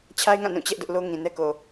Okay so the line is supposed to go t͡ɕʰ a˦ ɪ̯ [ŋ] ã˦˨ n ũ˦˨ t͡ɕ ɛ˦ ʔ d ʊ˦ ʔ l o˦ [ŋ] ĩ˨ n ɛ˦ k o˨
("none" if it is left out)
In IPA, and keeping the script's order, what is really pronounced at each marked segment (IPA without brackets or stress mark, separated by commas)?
ŋ, ŋ